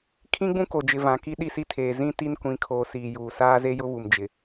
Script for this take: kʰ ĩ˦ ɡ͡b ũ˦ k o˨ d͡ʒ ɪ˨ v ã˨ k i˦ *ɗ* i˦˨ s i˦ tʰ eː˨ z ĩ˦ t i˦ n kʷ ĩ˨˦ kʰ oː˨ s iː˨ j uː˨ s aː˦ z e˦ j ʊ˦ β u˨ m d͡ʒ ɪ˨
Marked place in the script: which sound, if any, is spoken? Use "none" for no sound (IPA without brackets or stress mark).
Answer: ɗ